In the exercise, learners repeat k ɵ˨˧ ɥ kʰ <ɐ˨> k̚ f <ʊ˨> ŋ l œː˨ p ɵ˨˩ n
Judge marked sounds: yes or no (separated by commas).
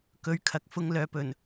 yes, no